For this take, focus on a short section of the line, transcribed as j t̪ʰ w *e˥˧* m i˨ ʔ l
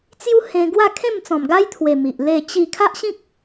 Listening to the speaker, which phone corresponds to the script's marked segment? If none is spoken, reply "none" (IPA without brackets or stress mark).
e˨˩